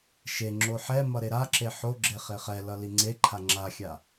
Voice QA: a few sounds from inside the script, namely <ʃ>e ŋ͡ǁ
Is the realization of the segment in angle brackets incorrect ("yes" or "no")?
no